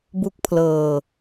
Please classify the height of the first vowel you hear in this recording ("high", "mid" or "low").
high